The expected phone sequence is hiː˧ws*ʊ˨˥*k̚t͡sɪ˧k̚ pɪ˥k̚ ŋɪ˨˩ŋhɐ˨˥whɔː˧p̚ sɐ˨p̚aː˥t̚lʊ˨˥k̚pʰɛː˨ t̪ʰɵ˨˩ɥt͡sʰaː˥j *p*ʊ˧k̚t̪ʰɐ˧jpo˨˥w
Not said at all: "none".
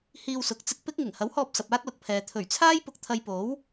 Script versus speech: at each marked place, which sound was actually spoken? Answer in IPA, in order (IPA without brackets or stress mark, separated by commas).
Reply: ʊ˨˥, p